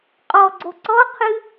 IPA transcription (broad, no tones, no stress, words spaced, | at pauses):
qʼɔɡ͡ǀo ǀɔqʰɨ